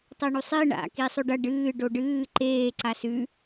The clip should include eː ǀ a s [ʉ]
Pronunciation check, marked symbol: correct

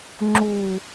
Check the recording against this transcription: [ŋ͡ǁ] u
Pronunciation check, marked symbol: correct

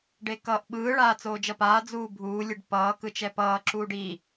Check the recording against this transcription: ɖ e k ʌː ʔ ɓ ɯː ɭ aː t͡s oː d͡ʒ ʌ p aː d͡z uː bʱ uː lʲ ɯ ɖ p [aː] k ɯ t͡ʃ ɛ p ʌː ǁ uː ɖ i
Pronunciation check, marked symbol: incorrect: ʌː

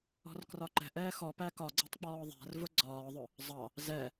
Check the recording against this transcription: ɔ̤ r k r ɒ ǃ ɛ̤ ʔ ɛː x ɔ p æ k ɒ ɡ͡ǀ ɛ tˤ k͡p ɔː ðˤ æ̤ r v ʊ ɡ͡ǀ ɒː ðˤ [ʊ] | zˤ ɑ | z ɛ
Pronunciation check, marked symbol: correct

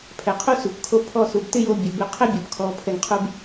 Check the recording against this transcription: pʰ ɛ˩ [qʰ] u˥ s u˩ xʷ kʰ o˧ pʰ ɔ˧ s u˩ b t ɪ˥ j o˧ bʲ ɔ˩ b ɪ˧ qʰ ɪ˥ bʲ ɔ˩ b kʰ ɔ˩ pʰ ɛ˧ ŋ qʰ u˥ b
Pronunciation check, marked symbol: correct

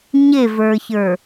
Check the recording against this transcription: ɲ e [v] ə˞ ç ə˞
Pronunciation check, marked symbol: correct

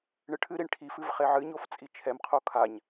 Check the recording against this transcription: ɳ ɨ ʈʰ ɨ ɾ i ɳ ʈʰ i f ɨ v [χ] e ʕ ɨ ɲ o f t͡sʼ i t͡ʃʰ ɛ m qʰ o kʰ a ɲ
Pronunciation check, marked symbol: correct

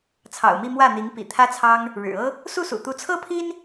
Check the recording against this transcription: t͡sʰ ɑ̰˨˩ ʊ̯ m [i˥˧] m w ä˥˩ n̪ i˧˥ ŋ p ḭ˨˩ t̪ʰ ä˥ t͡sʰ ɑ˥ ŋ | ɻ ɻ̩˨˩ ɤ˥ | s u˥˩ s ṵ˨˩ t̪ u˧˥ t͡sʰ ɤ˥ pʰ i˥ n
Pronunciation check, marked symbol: correct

